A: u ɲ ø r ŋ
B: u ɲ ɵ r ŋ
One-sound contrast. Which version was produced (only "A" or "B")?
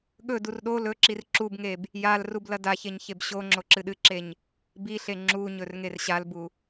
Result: B